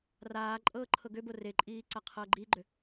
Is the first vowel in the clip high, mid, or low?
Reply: low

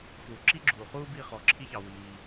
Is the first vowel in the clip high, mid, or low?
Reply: high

